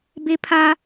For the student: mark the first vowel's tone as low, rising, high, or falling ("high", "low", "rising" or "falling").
high